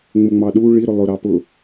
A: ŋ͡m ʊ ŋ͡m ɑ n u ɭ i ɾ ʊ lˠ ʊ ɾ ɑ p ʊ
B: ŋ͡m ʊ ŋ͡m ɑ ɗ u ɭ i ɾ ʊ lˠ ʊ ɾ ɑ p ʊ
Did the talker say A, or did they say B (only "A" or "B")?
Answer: B